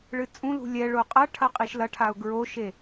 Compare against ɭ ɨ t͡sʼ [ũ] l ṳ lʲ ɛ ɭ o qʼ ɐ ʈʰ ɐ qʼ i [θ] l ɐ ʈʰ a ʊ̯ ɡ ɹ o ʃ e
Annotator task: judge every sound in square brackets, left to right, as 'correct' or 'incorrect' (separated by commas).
correct, incorrect